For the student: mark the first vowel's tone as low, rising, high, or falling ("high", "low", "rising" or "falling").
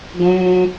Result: high